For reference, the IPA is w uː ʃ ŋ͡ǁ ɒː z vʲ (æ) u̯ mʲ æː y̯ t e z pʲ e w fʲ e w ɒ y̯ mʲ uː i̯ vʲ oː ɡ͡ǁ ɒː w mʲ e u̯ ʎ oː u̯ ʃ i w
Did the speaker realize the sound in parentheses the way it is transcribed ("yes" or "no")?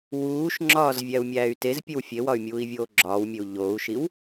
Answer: yes